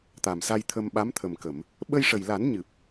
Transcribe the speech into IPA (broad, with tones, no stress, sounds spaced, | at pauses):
t̪ a˨˩ m s a˧ j t̪ʰ ə˧ m ɓ a˧˥ m t̪ʰ ə˨˩ m k ə˨˩˨ m | ɓ ə˧ j ʂ ə˨˩ j l a˨˩˦ n ɲ ɨ˨˩ p̚